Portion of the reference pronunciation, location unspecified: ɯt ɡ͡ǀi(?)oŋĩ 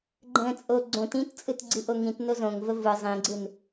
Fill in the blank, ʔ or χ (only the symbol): ʔ